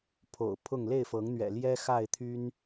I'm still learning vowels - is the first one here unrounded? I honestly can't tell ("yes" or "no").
no